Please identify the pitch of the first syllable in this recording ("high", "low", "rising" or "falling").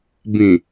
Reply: low